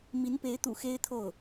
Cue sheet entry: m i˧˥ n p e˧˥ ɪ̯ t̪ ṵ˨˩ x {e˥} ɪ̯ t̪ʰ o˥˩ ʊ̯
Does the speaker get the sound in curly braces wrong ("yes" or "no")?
no